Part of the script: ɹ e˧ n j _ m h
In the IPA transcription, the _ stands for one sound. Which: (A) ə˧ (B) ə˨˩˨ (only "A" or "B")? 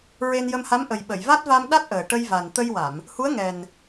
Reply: A